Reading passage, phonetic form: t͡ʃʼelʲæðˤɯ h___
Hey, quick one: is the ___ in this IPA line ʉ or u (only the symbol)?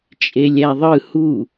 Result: u